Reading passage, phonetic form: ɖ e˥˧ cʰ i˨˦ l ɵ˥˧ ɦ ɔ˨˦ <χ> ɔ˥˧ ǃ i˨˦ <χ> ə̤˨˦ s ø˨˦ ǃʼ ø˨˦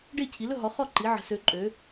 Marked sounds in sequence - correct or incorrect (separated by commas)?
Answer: correct, incorrect